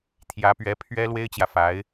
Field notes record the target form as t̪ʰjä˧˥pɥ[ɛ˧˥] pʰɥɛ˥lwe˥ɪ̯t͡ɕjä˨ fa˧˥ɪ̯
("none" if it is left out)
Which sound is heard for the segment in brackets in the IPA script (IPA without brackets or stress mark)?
ɛ˧˥